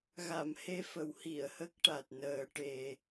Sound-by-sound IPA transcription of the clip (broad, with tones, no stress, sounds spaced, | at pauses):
ɣ a˨˩˨ m h e˧ f ə˨˩˦ w h i˨˩˨ ə̯ h ə˦˥ k̚ ʈ a˨˩ t̚ n əː˨˩ ʈ e˨˩